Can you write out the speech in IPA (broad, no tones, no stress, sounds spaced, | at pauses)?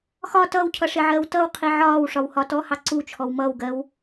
x ɒ t ʌː w cʰ ʌ ʂ ɪ ʕ ɜː w t ʌ w qʰ i ʕ ɒː w ʂ ɒ w h ɒ t ɔ h ɑ ǀ u t͡ʃʰ ɔ w m ʌː w ɡ ɜ w